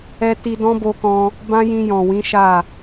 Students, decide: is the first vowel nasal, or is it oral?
oral